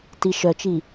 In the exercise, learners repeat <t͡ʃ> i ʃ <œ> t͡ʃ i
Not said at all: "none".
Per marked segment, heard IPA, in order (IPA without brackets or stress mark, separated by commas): t, œ